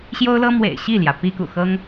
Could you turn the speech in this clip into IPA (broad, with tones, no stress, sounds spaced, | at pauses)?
ɕ j o˥ ʊ̯ l ɤ˥ m w ḛ˨˩ ɪ̯ ɕ i˥˩ l j ä˩ p i˥ k ṵ˨˩ x ɤ˥ ŋ